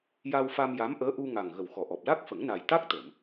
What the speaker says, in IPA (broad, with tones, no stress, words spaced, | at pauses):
ja˧wfa˧mja˧˥mʔəː˧˥ ʔu˧ ŋa˨˩ŋɣə˨˩w xɔ˨˩ʔɔ˨˩p̚ la˦˥k̚fə˨˩˦ŋna˨˩j t̪a˦˥k̚t̪ə˨˩˨m